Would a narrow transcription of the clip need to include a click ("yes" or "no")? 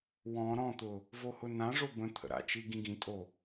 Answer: no